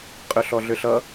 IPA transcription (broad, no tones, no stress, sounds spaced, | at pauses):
qʼ ʏ ɬ ɔ ɮ ʏ ɬ ʌ